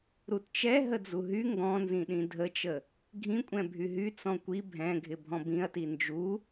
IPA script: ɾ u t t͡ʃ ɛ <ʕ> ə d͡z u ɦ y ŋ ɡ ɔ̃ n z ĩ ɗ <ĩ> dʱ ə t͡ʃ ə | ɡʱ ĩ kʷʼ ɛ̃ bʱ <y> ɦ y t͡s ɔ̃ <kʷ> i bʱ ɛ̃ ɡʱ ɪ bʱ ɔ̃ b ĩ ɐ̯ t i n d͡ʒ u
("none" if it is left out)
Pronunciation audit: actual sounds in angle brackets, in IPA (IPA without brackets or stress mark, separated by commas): ɦ, ĩ, y, kʷ